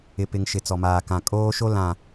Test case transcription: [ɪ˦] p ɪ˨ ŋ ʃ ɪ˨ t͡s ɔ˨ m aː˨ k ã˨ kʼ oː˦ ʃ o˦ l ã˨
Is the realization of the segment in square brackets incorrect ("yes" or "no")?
yes